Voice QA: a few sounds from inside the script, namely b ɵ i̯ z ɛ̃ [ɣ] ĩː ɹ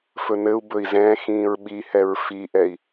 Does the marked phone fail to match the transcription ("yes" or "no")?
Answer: yes